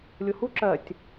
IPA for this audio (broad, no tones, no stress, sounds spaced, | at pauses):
lʲ ʊ h u ǁ ɜ tʲ